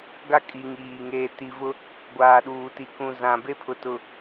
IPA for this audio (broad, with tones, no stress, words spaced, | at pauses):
ɡa˦kʼi˨ ŋiː˨ ŋeː˨ti˨vʊ˦ | ɡʷaː˨ɗuː˨ti˨ kũ˨ zã˨be˦pʰʊ˨ tʊ˨